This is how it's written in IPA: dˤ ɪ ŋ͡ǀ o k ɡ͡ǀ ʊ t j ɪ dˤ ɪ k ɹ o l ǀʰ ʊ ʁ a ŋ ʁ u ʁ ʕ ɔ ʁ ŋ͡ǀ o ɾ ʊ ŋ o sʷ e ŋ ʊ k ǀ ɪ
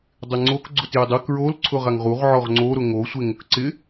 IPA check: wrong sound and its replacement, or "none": none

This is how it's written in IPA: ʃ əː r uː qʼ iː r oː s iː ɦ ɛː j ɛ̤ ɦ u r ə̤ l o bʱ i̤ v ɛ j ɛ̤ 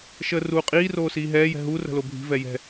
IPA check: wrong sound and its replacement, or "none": none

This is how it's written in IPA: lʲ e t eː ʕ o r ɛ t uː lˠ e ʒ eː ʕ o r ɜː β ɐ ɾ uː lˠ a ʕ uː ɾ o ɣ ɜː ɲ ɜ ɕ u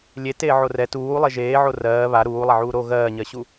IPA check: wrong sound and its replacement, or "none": ɐ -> a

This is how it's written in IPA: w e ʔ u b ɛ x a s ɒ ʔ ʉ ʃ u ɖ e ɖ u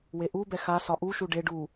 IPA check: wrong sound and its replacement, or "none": ʉ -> u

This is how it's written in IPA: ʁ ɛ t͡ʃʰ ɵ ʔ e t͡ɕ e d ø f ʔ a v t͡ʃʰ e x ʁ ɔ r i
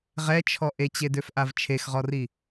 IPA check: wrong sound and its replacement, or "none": ɵ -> ɔ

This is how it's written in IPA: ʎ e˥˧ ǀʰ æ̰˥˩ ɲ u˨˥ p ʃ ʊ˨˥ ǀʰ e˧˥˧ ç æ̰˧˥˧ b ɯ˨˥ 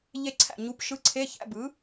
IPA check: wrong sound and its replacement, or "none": ʊ˨˥ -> ɯ˨˥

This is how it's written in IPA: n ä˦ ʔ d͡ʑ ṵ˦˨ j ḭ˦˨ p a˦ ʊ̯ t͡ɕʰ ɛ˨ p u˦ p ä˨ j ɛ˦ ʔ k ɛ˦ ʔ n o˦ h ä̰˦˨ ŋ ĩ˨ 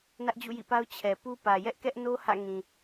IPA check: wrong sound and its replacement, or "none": none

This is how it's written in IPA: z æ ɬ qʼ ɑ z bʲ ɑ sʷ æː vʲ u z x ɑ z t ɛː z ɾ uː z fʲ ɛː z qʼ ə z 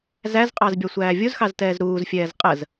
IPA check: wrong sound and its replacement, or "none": ɬ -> z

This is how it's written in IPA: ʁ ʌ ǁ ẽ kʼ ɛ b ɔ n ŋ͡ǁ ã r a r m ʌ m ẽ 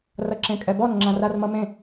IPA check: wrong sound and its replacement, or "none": ʁ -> r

